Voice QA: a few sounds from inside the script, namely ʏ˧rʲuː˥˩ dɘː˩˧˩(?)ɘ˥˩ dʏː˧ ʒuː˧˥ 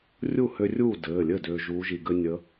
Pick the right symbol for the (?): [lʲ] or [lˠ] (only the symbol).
lʲ